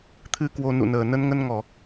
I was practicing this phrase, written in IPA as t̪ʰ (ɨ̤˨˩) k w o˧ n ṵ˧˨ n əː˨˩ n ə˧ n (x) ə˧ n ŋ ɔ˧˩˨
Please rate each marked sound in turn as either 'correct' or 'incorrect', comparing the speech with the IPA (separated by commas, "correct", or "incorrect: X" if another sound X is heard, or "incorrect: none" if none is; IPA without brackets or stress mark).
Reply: incorrect: ɨ˨˦, incorrect: ŋ